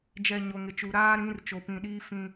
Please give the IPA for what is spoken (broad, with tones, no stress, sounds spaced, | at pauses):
d͡ʒ ɛ˨ ɲ o˨ ŋ ɪ˨ t͡ʃ u˨ ɾ aː˦ ɾ ĩ˨˦ r t͡ʃ o˨ p ĩ˨ ɗ iː˦ f ĩ˦